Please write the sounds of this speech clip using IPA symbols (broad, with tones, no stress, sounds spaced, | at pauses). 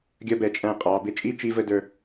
ɡʲ ʌ˧ b ɛ˧˩ t͡ʃʼ æ̃˧˩ qʼ ɑ˩˧ b ɪ˧ t͡ʃʼ i˥˧ t͡ʃ i˧ v ə˧ d ə˞˧